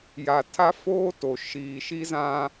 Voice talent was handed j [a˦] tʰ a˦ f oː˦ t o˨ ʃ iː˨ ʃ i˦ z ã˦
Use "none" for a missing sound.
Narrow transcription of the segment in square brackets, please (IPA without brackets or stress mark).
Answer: a˨